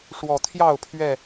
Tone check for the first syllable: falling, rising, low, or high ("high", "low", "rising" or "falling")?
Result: low